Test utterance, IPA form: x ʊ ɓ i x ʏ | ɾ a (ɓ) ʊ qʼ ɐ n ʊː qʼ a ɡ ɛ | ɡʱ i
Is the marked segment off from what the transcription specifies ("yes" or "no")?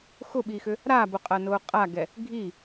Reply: yes